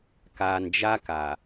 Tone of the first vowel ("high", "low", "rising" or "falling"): low